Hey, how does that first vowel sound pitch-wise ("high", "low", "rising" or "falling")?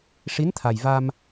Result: rising